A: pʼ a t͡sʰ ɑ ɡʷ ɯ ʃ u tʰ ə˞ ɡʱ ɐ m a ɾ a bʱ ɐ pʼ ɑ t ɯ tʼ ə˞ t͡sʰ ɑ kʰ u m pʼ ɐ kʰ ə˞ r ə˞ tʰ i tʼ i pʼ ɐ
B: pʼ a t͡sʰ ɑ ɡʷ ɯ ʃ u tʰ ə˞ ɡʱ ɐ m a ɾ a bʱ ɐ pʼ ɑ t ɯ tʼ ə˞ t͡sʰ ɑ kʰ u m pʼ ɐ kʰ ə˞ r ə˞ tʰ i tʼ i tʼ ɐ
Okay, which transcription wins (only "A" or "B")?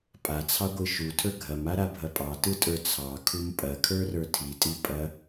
A